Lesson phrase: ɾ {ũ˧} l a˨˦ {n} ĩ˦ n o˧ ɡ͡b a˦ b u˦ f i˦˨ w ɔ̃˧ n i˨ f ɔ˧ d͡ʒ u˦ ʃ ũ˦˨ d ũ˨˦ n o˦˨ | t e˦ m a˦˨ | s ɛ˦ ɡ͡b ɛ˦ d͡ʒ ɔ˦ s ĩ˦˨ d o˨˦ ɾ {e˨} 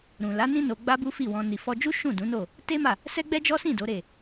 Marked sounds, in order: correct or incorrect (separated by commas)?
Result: incorrect, correct, incorrect